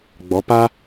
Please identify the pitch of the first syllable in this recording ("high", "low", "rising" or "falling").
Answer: rising